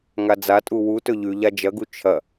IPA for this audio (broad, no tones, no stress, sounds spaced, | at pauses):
ŋ a d͡z a tʼ u w u t ɵ ʎ ʉ ʎ a d͡ʒ ɐ ɡ u t͡ʃʰ ɐ